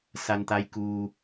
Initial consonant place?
alveolar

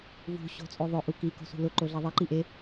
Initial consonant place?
labial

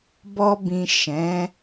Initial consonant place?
labial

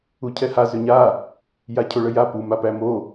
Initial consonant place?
palatal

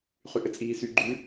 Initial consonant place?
uvular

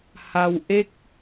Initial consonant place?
glottal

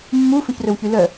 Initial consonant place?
labial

